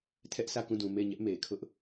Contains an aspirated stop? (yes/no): yes